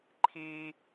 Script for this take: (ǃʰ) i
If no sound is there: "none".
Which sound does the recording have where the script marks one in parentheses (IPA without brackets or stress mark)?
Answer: ǃʰ